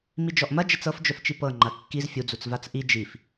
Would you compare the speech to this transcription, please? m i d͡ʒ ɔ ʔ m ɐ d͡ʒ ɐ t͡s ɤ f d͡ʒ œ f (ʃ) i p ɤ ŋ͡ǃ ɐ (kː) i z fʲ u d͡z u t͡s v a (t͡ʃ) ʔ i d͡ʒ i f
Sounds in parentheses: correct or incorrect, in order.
incorrect: t͡ʃ, correct, incorrect: t͡s

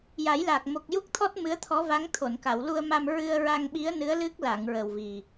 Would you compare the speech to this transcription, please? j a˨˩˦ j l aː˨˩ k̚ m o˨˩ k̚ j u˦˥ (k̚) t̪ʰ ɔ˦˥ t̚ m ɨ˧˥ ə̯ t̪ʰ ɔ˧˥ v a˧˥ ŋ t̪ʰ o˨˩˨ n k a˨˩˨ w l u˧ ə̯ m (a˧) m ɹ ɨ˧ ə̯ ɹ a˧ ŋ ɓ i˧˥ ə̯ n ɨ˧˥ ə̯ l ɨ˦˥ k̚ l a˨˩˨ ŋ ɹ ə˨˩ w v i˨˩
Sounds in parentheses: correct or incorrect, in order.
correct, correct

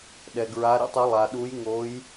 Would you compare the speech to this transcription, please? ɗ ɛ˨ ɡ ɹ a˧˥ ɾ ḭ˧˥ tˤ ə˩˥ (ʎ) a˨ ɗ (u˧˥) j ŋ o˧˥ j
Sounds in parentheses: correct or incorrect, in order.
incorrect: lˠ, correct

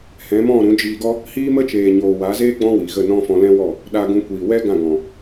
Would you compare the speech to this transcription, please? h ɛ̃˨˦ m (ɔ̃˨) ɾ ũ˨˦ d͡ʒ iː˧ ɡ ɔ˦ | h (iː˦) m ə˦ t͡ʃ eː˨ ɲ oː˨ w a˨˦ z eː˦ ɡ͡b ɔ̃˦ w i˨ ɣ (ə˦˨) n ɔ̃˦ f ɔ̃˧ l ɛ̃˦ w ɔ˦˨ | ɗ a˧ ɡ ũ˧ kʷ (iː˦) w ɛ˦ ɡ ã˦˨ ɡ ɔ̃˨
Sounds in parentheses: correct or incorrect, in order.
incorrect: ɔ̃˦˨, correct, correct, incorrect: iː˨

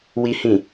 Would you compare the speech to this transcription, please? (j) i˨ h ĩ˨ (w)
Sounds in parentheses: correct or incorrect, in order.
incorrect: w, incorrect: none

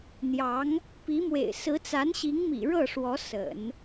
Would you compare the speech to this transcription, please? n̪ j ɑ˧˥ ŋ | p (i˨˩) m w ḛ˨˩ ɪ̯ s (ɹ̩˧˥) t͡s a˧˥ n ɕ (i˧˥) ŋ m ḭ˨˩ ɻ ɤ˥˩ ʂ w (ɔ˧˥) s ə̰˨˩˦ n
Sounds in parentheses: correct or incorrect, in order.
incorrect: i˧˥, correct, correct, correct

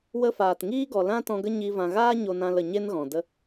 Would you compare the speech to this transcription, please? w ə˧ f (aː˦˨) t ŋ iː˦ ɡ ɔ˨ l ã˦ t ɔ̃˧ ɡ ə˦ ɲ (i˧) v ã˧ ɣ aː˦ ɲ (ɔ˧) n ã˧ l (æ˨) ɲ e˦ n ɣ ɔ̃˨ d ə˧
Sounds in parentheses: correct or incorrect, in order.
incorrect: aː˨, correct, incorrect: o˧, incorrect: ə˨

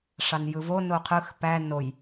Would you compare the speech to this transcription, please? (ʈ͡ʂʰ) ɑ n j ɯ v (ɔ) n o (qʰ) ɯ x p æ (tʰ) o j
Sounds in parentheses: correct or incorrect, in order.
incorrect: ʂ, incorrect: o, correct, incorrect: n

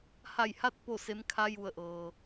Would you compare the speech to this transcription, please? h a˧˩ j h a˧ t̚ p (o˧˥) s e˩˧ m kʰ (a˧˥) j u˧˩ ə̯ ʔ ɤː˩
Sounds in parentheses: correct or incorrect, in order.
incorrect: o˧˩, correct

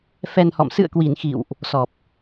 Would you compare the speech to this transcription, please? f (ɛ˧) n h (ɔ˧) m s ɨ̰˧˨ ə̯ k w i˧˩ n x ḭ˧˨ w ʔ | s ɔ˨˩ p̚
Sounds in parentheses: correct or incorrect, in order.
correct, incorrect: ɔ̰˧˨

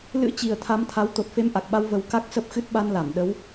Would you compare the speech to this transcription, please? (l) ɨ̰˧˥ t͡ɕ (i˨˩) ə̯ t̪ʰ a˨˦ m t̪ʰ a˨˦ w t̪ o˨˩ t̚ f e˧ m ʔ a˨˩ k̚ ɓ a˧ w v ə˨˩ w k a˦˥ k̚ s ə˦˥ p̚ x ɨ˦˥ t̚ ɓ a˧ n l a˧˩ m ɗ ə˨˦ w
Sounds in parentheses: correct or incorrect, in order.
correct, correct

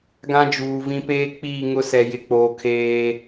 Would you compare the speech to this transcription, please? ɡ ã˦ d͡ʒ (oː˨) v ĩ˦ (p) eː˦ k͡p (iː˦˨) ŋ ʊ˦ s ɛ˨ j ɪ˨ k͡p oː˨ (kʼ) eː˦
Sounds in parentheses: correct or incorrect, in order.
incorrect: uː˨, correct, correct, incorrect: kʰ

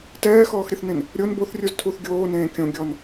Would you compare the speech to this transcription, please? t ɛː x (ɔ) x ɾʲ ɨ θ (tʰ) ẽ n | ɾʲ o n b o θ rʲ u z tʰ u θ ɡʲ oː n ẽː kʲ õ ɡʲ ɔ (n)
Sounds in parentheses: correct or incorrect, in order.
incorrect: ɔː, incorrect: n, correct

